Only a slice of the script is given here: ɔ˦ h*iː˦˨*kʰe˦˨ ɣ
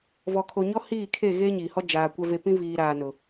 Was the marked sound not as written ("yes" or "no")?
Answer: no